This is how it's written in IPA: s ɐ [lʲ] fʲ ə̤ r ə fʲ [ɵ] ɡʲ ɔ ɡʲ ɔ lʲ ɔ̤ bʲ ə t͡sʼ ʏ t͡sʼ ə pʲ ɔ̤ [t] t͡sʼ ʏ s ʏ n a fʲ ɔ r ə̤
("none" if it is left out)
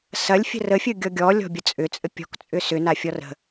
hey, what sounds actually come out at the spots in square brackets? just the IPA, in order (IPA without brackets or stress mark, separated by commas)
lʲ, ɵ, k